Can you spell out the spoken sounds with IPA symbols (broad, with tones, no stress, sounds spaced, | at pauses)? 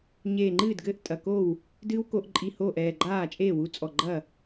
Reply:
ɲ eː˧˩ ŋ͡ǃ ɨː˥˩ d ɡ ɘː˥˩ ʔ tʼ ɐ˩˧˩ k o˥˩ w | d ɨː˦˥ w k o˧ ʔ ǃʼ i˧˩ h oː˥˩ ʔ ɛː˧˩ ɡ͡ǃ aː˥˩ t͡ʃʼ eː˥˩ w u˧ t͡sʼ ɔ˧˩ ɡ͡ǃ ɐ˥˩